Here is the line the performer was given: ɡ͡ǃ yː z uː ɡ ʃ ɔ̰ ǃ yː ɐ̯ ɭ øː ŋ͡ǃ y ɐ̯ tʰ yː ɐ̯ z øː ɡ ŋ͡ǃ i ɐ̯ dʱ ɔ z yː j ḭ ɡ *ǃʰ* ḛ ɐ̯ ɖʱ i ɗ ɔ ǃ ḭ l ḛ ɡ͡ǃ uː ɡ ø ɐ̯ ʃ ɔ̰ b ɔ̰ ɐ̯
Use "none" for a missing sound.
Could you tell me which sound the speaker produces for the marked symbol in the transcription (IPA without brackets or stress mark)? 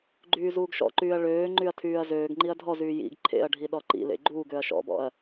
ǃʰ